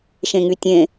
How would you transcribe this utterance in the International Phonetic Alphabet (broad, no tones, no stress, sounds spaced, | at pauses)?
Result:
ʃ ẽ ŋ y tʲ ẽ